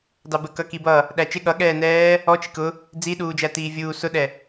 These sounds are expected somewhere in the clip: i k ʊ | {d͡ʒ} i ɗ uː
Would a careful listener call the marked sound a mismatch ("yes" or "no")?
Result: yes